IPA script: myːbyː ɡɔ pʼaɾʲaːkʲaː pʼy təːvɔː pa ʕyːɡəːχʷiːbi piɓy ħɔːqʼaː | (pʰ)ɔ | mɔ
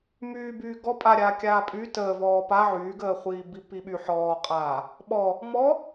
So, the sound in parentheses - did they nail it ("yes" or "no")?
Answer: no